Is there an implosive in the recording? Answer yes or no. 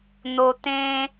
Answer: no